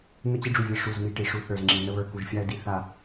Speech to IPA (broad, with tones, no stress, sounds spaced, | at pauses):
n ə˦ t͡ɕ i˦ ɖ͡ʐ u˨ vʲ ə˦˨ ʂ u˦˨ z m i˦ ʈ i˨ ʂ u˦ θ ə˞˨ z ŋ͡ǁ i˨ n ə˦ β ə˞˨ k u˨ ʒ fʲ a˦ ə̯ d i˨ θ a˨